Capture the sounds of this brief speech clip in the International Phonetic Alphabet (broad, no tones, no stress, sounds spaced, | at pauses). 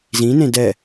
z ĩ n ẽ d ɛ